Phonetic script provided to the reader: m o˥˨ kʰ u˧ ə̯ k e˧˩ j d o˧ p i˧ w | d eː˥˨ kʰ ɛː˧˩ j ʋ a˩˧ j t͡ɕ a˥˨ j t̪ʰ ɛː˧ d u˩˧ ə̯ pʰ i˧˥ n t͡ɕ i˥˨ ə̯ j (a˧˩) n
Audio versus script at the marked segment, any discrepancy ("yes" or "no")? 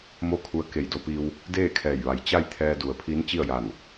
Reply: no